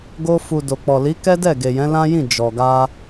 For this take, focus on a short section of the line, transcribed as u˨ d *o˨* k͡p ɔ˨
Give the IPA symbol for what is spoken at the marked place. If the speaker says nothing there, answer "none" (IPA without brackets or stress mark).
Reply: o˨